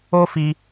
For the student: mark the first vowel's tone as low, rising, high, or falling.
high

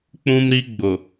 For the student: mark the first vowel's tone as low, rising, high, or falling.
high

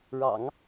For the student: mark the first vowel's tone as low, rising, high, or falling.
low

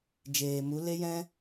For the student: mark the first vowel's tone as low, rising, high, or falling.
low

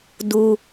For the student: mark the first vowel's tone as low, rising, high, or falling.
low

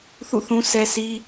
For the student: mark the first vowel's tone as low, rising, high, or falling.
falling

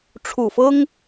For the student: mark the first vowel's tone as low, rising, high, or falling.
low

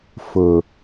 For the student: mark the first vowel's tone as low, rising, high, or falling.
low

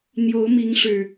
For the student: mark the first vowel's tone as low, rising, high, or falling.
rising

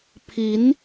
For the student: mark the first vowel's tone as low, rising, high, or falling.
rising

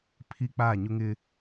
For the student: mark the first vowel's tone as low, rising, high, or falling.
high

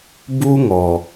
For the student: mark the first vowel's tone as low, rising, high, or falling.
high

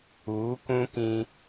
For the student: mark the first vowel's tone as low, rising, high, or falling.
rising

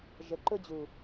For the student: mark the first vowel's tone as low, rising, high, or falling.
low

